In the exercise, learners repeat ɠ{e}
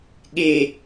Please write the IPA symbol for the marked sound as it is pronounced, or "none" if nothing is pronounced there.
e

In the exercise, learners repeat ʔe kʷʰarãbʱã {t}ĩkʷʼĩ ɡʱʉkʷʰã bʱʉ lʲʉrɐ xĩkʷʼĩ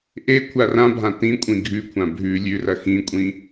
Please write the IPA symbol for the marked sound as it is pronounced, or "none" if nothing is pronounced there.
t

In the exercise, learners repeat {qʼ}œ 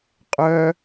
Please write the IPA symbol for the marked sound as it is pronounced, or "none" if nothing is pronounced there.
qʼ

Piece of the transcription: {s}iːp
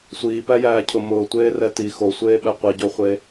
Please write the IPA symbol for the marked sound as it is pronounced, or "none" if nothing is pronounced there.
sʷ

